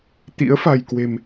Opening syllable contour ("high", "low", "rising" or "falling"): rising